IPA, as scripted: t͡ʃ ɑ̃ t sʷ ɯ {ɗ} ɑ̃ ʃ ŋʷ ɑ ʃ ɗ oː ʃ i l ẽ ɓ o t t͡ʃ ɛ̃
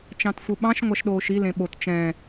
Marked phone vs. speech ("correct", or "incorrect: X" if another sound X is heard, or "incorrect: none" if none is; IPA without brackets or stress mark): incorrect: ɓ